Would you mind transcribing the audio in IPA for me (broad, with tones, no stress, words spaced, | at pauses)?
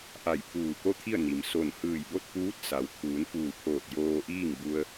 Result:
ʔa˧˩jpʰuː˧˩ko˥˨t̪ʰi˥˨ə̯ ni˩m so˧˩n hɯː˧˩jbo˥˨t̚puː˧˥t̚ sa˩w t̪ʰuː˩˧nfuː˧˩pʰoː˧˩t̚ joː˧ʔiː˥˨ŋbu˧ə̯